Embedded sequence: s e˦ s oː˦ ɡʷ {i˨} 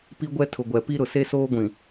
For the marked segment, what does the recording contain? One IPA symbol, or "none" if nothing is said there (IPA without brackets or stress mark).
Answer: ĩ˨